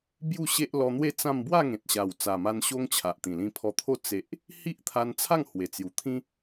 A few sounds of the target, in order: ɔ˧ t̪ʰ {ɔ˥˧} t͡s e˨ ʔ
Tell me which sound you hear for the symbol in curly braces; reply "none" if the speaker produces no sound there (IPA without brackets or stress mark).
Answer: o˥˧